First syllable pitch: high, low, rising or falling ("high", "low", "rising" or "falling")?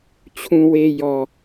low